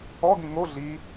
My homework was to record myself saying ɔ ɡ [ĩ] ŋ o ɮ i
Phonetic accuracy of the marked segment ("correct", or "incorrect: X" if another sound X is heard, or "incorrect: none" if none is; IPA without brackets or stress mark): correct